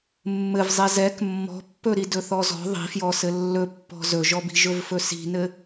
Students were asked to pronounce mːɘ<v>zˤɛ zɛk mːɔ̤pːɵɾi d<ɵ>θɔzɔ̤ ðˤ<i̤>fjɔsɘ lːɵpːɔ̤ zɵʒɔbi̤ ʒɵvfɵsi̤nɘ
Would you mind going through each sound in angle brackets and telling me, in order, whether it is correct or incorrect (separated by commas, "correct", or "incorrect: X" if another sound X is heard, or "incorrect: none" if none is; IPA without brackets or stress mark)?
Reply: correct, correct, correct